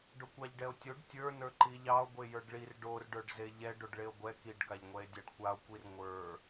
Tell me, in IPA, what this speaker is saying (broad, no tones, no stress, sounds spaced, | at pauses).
ɖ o kʷ ɑ ʎ ɖ ɛ o̯ tʲ o ɖ tʲ ə˞ n ə˞ ǃ i ʎ ɑ o̯ ɡʷ e j ə˞ ɖ ɭ i r ɖ o r ɖ ə˞ ɖ z e ʎ ɛ ɖ o ɖ ɭ e o̯ ɡʷ ɛ k i ɖ k a ʎ ŋʷ ɛ e̯ dʲ a ɖ kʷ a o̯ kʷ i r ŋʷ ə˞